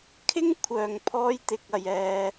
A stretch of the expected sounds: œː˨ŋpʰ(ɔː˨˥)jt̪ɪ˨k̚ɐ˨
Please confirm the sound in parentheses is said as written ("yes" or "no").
no